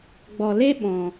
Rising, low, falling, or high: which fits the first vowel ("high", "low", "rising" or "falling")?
low